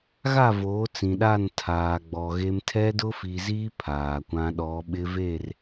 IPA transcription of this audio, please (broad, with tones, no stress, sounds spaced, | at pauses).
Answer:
ɣ a˦˨ v oː˨˦ t͡s ĩ˨ ɗ a˦˨ n tʰ aː˨ ɡ͡b ɔ˨ ɣ e˦ m tʰ ɛ˦ d ʊ˦ f i˨ z i˦ pʰ aː˨ kʷ ã˦ ɗ ɔ˨˦ ɓ ɪ˦ v e˦˨ r